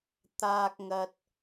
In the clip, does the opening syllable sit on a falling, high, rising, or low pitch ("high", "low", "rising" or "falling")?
low